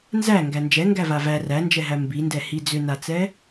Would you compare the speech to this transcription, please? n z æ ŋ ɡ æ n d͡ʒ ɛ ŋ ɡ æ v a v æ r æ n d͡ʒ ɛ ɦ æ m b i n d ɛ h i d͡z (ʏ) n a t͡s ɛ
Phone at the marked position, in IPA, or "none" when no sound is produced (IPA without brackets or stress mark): ʏ